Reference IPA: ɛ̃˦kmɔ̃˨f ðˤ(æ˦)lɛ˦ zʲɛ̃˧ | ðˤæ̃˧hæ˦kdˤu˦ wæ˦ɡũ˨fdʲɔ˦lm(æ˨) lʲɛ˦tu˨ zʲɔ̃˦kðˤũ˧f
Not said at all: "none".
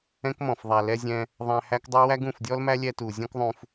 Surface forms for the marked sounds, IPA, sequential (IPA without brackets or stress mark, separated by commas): æ˨, æ˦